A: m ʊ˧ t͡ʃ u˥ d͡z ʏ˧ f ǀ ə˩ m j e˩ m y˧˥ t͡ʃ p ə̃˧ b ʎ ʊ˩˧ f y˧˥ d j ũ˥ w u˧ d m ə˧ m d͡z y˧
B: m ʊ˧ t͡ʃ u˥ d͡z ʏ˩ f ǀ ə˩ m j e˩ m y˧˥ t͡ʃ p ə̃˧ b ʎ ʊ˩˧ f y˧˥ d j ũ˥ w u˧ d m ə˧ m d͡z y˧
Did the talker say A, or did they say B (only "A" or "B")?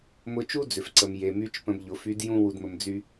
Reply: B